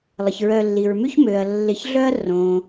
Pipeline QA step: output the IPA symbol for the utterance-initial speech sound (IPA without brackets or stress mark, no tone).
lˠ